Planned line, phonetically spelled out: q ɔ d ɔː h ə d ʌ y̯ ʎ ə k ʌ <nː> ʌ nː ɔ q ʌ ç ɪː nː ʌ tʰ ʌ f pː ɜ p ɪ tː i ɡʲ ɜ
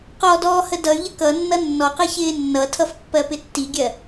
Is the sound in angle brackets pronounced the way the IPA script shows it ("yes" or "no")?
yes